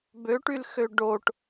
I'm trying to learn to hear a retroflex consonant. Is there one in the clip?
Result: yes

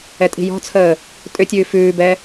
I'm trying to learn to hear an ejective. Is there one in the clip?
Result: yes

